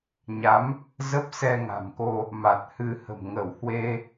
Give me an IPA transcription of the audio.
ɲ a˨˦ m | z ə˦˥ p̚ s ɛ˧ ŋ a̤˨˩ m k o˧ | m a˨˩ t̚ h ɨ˧ h ə̤˨˩ m ŋ ə˧˩ w h w e˧

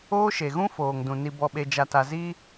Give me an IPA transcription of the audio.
oː˦ ʃ e˨ ɣ ũ˦ f oː˨ ŋ d ũ˨ n i˨ b ɔ˨ ɓ e˨ d͡ʒ a˨ t a˨ z i˦

